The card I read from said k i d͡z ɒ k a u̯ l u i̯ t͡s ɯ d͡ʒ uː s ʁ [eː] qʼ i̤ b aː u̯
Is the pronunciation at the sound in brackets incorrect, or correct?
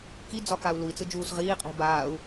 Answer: incorrect